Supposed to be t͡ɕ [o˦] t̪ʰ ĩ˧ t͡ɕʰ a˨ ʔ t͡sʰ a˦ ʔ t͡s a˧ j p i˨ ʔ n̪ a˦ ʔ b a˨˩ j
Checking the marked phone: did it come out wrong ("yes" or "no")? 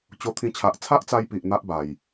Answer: yes